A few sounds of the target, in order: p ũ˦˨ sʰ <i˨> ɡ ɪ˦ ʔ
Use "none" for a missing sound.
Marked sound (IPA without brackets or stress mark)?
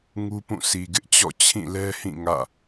i˨